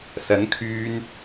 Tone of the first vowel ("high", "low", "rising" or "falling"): rising